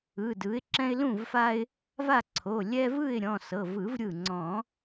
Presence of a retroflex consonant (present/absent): absent